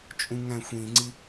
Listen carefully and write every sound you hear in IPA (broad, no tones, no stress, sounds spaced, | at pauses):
t͡ʃʼ ũ ŋ æ̃ xʷ ĩ ŋ͡ǀ i